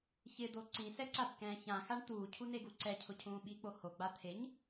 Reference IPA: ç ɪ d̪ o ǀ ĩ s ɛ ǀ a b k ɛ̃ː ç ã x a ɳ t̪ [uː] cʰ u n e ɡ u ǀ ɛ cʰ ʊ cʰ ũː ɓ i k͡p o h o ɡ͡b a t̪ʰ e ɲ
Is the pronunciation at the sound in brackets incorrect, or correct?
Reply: correct